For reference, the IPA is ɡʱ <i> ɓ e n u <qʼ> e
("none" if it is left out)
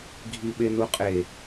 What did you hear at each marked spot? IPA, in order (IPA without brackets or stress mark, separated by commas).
i, qʼ